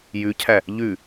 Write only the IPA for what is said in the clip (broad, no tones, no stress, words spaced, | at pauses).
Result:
jʉcʰæ | ʎʉ